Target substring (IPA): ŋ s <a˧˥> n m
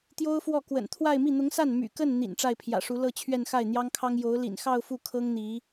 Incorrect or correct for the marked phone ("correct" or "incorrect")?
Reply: incorrect